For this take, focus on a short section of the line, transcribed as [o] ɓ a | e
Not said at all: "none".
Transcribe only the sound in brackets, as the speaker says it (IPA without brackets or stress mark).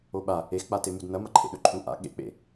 o